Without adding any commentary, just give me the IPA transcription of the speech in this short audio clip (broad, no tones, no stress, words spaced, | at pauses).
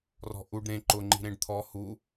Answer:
rɔ̤ʔuɖ ɾẽ ǃʊ ŋ͡ǃi̤ɾẽɖt̪ʰɔ hu